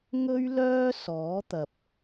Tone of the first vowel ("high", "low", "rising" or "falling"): high